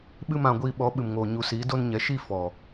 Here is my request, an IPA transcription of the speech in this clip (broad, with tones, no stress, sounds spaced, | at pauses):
ɓ ɨ˦ m ã˧ ɡʷ iː˧ ɓ ɔ˨˦ ɓ ɨ˨ m ŋ oː˨ ɲ u˨ s iː˨˦ d o˧ n ɲ ɛ˨ ʃ i˦˨ f ɔ˨